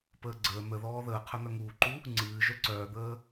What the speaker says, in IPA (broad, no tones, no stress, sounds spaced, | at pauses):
p əː ɡ͡ǀ əː n̪ ə ð ɔː ð əː qʰ œ n̪ œ ŋ uː ǃ u | ŋ͡ǀ ɨː ʒ œ ǀ œː d̪ əː